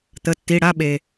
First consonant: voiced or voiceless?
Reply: voiceless